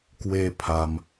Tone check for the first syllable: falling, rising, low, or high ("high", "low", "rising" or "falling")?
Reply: high